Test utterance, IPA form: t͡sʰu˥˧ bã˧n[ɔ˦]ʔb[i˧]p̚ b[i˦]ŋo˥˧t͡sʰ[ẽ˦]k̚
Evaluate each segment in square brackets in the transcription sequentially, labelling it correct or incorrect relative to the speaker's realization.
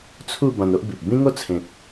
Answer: incorrect: o˦, incorrect: i˨, incorrect: ĩ˦, incorrect: ẽ˨

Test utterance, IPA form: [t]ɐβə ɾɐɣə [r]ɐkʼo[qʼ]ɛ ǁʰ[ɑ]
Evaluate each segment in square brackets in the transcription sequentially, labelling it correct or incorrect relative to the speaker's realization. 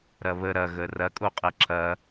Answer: incorrect: ɾ, correct, correct, incorrect: ɐ

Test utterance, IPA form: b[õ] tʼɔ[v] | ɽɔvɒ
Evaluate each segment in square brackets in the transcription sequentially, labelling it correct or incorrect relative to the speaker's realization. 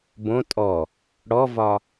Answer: correct, incorrect: none

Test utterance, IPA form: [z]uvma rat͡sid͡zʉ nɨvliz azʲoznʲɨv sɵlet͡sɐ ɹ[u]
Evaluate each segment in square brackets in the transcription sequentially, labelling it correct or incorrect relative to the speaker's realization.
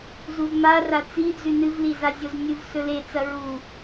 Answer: correct, correct

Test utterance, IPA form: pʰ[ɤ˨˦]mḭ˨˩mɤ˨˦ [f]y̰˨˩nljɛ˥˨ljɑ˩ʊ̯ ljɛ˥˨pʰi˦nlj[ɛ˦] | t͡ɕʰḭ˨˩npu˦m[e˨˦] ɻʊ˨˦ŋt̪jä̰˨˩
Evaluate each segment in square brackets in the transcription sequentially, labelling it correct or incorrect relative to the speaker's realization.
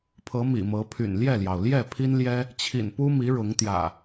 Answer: correct, incorrect: pʰ, correct, incorrect: i˨˦

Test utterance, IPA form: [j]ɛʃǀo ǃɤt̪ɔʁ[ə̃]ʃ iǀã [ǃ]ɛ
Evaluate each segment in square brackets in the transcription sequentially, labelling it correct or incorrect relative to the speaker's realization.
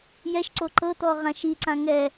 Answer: correct, incorrect: ã, incorrect: ŋ

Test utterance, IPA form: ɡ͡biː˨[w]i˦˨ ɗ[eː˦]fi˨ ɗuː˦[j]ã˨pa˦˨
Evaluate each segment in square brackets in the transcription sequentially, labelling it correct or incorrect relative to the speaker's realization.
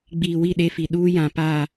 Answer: correct, incorrect: e˦, correct

